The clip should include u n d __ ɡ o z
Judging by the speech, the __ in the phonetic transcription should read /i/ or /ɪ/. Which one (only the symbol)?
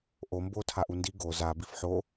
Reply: i